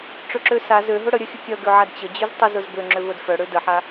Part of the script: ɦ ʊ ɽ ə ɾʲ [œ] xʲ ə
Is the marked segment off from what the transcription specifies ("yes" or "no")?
no